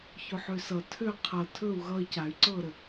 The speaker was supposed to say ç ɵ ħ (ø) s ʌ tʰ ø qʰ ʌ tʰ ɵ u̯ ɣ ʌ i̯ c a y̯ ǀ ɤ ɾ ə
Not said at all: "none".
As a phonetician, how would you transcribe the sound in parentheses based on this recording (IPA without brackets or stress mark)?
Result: ø